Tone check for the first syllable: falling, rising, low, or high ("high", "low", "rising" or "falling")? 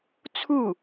falling